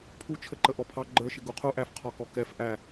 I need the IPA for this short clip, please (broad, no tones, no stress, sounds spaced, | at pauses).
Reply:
pʰ u t͡ʃʰ ə ǃ ə ʔ ɔ pʰ ɑ ɡ͡ǃ ə˞ ʃ ɪ ɡ u qʰ u ʔ æ f qʰ ɔ k ɔ k ɛ f ʔ æ